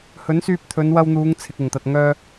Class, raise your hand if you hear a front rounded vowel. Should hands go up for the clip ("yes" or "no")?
yes